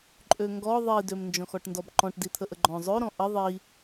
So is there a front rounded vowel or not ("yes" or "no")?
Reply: yes